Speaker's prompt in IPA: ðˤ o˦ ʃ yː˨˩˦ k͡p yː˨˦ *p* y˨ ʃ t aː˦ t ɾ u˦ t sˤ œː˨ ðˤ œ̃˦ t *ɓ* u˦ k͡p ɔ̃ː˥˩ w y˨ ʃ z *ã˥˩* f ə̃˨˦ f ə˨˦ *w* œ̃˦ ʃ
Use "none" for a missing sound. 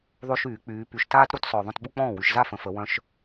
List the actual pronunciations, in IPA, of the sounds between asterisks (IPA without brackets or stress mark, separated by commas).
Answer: p, ɓ, a˥˩, w